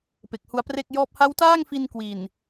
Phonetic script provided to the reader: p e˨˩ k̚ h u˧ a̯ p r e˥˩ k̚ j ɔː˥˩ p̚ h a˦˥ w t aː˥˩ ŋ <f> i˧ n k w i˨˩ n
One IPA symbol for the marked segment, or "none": f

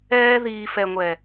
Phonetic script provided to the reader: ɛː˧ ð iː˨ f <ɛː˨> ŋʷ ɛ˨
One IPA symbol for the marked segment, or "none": ɛ˨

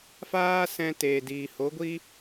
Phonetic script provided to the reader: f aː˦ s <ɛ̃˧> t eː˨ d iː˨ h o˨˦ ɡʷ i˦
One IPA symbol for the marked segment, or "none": ɛ̃˧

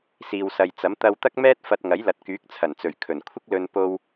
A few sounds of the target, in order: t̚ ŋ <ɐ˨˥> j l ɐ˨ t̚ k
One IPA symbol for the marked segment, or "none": ɐ˨˥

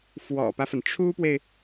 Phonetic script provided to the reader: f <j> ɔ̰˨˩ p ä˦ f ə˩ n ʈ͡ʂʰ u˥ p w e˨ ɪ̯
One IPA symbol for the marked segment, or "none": w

